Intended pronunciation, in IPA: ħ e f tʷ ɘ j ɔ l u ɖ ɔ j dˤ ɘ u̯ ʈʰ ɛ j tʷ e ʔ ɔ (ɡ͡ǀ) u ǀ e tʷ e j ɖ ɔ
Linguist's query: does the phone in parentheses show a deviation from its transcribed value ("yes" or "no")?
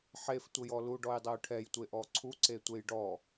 yes